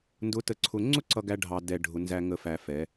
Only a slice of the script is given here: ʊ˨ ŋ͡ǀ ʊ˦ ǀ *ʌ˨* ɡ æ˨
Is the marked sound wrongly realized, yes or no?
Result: no